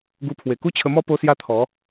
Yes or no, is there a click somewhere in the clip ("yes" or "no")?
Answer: no